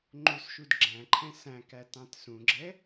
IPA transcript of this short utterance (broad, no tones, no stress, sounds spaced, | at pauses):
ŋ͡ǃ u s ʃ u d ɡ͡ǁ æ̃ ǃʰ ɛ̃ s æ̃ k æ t ɑ̃ t s ũ ɡ͡ǁ ɛ